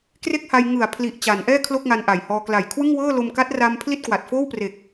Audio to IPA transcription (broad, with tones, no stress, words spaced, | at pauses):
kre˥˩k̚ha˧jŋɯ˨˩a̯pʰli˨˩ʔ t͡ɕa˩˦nʔɛː˥˩ kʰlo˥˩k̚ŋa˧nʔa˨˩jhɔː˧ kla˨˩jkʰwɯ˥˩ŋwɤː˥˩ lo˧mka˦˥t̚ra˧m pʰli˥˩t̚kwa˨˩t̚foː˥˩wpre˨˩k̚